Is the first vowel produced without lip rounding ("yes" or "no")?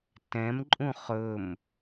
yes